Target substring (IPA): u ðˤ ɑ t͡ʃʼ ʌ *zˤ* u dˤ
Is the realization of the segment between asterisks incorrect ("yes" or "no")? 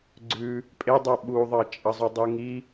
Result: no